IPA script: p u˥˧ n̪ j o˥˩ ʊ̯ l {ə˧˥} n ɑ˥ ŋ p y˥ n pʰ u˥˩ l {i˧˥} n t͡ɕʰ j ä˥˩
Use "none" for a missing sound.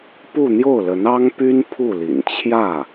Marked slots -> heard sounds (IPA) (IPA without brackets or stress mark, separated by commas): ə˧˥, ḭ˨˩